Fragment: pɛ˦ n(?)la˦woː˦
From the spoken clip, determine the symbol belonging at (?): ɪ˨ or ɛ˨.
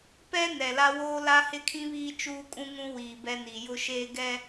ɛ˨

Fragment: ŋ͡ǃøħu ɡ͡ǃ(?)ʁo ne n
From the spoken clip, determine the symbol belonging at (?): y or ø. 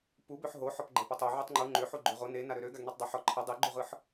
ø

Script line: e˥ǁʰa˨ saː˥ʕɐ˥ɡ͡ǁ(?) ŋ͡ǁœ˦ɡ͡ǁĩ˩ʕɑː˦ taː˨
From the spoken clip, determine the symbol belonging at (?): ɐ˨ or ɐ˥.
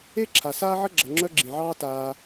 ɐ˨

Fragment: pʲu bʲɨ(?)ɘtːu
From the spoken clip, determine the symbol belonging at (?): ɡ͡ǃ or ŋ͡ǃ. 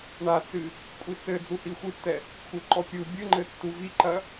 ŋ͡ǃ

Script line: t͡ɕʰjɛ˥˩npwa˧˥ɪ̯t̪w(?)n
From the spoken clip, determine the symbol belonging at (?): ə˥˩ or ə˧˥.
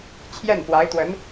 ə˧˥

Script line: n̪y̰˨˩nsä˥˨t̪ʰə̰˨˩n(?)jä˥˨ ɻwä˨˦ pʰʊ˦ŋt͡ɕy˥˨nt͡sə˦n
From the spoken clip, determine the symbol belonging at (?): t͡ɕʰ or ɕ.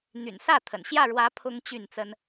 ɕ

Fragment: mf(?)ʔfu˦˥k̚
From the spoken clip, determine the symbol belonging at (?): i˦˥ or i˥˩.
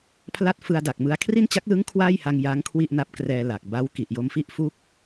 i˥˩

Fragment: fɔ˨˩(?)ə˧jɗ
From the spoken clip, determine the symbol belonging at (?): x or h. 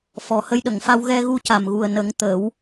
h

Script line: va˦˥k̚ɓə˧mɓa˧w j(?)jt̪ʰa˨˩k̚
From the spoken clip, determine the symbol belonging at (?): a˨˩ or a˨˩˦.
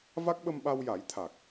a˨˩˦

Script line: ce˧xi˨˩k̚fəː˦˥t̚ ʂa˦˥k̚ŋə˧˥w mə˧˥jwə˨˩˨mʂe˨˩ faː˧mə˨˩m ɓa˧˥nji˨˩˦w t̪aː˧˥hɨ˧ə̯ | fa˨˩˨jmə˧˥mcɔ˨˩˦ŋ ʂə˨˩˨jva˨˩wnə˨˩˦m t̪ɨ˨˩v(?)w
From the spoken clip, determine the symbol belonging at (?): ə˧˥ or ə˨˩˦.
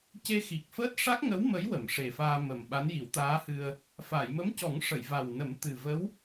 ə˧˥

